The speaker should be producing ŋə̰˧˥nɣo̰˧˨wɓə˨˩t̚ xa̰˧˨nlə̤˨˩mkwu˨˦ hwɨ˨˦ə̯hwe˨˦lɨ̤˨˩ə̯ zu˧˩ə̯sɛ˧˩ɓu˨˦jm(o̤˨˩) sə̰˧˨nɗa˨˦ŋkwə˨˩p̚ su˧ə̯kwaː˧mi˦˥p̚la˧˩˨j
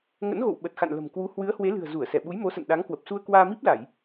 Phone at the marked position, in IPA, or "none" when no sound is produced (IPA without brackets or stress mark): o˨˦